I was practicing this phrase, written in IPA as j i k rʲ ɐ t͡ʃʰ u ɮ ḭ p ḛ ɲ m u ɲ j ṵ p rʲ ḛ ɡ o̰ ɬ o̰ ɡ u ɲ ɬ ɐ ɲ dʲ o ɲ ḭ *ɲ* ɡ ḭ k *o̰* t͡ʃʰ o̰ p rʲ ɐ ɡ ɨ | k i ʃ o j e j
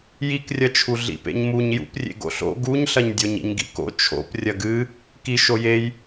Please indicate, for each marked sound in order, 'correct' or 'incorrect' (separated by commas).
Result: correct, correct